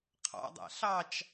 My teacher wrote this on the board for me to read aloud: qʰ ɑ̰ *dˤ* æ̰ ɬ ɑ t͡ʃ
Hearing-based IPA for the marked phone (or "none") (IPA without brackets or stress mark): dˤ